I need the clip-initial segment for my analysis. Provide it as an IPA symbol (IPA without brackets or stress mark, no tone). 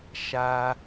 ʃ